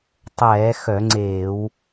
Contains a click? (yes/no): yes